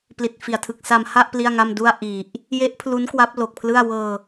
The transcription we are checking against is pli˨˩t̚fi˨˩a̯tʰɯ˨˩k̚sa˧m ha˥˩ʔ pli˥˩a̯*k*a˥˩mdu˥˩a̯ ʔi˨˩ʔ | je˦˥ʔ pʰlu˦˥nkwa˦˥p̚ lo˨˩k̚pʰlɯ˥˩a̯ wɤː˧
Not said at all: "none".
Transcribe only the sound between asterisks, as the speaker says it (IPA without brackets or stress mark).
ŋ